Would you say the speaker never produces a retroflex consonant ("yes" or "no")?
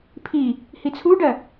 no